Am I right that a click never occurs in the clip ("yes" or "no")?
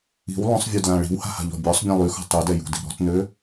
yes